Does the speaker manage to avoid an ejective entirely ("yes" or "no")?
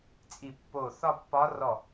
no